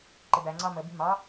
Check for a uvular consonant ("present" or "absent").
absent